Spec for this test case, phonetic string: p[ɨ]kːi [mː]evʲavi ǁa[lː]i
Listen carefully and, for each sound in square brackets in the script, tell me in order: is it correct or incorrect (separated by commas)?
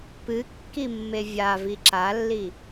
correct, correct, correct